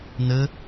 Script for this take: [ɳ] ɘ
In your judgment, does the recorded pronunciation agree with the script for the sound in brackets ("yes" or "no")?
no